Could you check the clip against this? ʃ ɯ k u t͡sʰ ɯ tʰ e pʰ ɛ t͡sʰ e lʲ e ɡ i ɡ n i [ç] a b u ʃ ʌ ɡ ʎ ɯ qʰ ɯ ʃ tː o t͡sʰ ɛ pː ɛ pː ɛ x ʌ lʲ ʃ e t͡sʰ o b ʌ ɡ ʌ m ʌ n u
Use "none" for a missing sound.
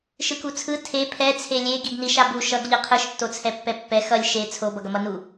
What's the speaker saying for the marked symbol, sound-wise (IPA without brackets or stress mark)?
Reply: ʃ